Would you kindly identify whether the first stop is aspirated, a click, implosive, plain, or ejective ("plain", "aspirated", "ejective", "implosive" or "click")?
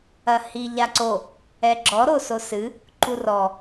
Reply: click